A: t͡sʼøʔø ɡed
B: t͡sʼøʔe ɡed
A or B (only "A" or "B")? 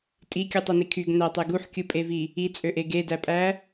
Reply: B